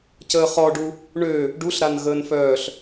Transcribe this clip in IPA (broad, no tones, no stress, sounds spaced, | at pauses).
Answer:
c əː χ ɔ ɖ u | ɳ ø | ɖ u ɬ ɾ a n ɣ əː n f œː ɬ